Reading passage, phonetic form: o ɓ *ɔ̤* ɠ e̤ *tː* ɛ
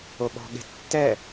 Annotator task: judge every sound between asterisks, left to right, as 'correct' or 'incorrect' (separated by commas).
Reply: correct, correct